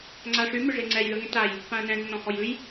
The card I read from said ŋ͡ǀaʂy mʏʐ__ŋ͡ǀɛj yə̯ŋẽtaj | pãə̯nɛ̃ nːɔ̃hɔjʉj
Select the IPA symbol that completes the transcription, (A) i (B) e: B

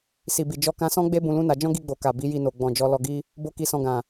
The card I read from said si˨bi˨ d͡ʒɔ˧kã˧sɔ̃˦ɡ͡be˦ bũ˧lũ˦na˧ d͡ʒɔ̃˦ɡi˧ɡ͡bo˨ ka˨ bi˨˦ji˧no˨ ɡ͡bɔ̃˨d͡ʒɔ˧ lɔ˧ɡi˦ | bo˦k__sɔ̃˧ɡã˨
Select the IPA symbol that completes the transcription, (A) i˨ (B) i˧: B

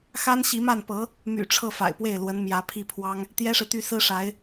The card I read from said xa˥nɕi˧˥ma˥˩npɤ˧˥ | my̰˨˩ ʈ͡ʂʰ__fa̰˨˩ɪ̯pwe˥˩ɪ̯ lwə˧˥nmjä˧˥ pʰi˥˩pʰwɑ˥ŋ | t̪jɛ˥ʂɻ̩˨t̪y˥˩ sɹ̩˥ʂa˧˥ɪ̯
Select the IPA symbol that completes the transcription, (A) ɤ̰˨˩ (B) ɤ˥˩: B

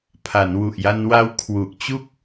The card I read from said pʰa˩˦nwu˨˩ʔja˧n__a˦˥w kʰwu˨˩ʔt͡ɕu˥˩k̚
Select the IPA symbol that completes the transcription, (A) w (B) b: A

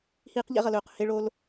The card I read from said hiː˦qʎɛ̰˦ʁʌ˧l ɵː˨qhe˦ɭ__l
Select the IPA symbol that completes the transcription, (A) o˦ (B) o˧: A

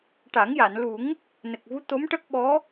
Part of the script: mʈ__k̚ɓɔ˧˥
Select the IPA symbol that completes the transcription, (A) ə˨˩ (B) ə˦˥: B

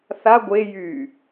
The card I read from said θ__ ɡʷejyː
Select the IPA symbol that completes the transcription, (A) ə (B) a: B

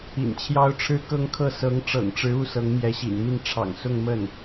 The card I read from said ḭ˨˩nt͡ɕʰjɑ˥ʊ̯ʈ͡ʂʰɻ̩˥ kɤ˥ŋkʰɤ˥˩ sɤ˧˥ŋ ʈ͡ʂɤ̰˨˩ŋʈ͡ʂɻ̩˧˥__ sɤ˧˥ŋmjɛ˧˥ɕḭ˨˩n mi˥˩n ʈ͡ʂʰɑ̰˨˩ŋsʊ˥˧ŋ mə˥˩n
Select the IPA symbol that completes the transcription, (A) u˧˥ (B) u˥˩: B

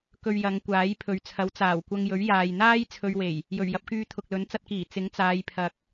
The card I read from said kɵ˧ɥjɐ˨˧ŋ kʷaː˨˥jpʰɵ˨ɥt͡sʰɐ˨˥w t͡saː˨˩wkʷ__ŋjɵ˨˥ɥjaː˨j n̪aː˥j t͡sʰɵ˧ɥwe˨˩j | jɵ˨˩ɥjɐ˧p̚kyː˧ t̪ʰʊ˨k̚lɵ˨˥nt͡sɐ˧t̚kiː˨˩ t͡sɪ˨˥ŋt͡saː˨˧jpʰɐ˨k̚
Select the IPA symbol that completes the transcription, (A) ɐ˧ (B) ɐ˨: A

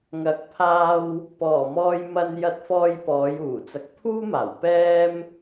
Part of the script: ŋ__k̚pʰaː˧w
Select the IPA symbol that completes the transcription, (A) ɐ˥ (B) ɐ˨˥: B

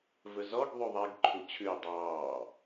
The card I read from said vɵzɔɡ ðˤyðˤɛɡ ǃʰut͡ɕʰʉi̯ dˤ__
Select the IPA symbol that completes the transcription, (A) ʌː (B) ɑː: B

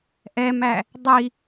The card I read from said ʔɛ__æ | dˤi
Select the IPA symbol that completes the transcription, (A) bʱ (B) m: B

